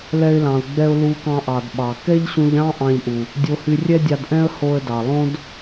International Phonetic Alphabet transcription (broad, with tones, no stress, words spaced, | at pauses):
lɛ˧ɪ̯lɑ̃˩ʊ̯ɡ͡bɛ˧ʊ̯ lu˧kɑ̃˧ʔɑ˩d ɓɑ˩ kɛ˥ʎɕũ˧ʎɑ̃˥ ʔɑ̃˧ʎʔu˩ | dʲo˧hy˧rʲɛ˥dʲɑ˧d ʔɛ̃˥ə̯ho˧ə̯dɑ˩lˠõ˥d